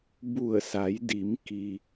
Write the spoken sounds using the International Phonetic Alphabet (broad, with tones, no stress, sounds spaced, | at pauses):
b u˧˩ ə̯ s a˩˧ j d i˩˧ m k i˩